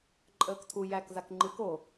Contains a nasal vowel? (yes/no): no